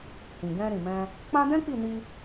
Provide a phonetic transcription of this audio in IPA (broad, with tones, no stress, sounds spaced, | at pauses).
h ĩ˨ ɡ ɛ̃˧ ɾ ĩ˨ m ɛ̃˧ | k͡p ã˦ d ɛ̃˦ k͡p i˦˨ n i˧